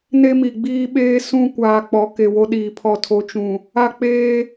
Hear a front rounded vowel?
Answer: no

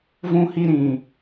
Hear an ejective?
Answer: no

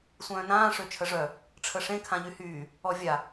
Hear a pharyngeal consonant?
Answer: no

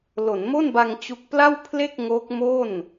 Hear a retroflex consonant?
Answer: no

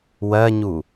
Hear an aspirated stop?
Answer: no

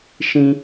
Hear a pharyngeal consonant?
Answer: no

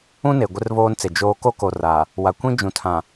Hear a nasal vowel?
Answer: yes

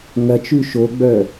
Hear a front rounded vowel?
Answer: yes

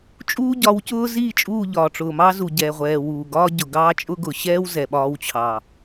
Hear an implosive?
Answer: yes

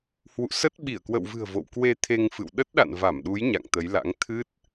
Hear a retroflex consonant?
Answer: no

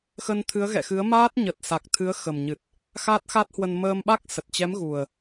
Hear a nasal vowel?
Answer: no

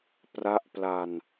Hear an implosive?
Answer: no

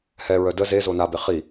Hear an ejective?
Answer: no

